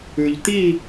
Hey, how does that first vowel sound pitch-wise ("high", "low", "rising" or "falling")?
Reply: low